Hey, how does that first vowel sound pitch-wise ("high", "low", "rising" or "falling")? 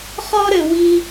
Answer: high